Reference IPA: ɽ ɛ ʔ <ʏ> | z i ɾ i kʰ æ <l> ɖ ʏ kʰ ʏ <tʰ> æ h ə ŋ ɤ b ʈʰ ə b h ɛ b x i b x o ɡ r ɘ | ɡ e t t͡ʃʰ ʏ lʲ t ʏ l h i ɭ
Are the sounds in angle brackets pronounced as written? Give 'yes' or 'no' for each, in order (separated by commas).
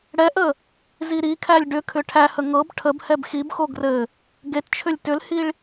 no, no, no